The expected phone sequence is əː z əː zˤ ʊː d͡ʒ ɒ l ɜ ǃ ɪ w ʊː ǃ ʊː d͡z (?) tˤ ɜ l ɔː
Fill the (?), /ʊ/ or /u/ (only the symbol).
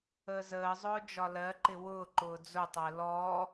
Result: ʊ